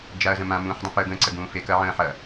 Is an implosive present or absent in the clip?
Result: absent